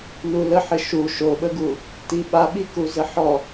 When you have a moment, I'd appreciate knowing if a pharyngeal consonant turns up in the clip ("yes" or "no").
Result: yes